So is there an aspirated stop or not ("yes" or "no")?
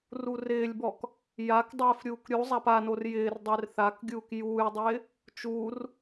no